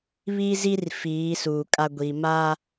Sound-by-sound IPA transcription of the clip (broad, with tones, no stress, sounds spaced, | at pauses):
β i˦ z i˦ r f iː˨˦ s uː˨ kʼ a˦ ɡʷ i˨ m a˦